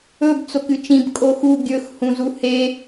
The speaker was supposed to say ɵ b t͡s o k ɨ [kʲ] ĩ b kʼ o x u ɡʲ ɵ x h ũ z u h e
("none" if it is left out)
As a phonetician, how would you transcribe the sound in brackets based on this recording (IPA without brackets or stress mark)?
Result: t͡ʃ